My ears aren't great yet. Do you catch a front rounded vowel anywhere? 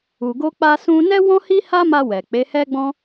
no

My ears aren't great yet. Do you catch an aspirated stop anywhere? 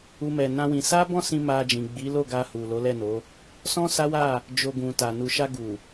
no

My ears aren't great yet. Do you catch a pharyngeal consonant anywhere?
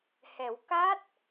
no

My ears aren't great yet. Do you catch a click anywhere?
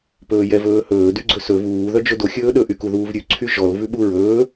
yes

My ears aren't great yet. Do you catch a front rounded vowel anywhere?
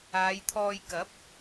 no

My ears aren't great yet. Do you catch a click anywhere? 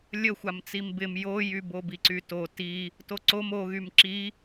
yes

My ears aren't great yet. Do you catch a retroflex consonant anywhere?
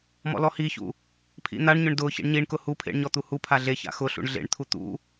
yes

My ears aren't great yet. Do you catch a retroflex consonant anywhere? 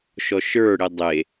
yes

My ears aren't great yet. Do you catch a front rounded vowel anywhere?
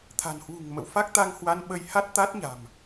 no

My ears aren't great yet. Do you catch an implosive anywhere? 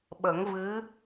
yes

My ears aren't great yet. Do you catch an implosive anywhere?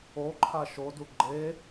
no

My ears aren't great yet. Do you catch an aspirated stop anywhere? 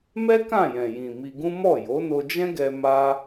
no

